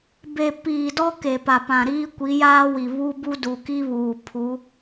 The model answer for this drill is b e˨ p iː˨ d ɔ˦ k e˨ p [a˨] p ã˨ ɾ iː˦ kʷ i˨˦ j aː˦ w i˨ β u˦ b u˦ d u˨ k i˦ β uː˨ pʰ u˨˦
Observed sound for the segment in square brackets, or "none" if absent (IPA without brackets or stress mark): a˨